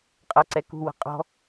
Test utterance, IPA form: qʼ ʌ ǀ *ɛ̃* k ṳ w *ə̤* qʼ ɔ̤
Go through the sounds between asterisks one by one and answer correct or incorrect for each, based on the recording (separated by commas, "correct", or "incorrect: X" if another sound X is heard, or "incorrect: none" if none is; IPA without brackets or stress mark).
incorrect: ɛ, correct